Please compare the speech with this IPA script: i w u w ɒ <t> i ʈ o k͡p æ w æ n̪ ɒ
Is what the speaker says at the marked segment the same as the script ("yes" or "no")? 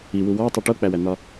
no